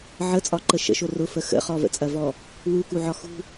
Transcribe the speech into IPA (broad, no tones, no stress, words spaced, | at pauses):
ʕət͡sʼɒǃə ʃə̰ʃo rʊfə xə̰ χɔvə̰t͡sʼɐvɔ | wukuʕɒ xṳ